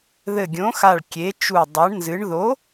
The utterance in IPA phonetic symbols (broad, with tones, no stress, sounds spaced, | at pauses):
ð ɘ˧˩ ɡʲ õ˨˥ x a˧˩ ɭ kʲ e˨˥ t͡ʃ u˧˩ dˤ a˨˥ ɳ n z ɨ˨˥ ɳ ð o˨˥